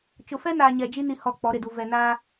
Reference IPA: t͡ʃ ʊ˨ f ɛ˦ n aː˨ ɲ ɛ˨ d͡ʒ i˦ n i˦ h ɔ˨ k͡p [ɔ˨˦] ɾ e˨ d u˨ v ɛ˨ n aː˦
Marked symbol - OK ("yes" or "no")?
yes